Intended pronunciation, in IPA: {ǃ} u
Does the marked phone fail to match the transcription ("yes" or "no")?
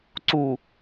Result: yes